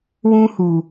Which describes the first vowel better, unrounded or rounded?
rounded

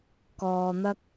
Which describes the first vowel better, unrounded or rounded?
rounded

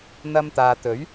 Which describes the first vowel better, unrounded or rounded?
unrounded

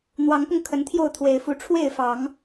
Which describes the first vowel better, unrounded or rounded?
unrounded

